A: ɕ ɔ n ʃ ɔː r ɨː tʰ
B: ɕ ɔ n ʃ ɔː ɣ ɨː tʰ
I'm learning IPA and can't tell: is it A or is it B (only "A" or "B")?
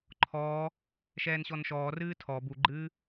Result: A